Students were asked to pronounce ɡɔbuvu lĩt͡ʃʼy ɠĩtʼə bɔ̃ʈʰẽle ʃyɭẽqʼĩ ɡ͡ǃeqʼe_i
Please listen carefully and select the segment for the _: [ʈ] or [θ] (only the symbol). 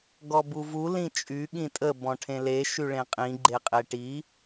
ʈ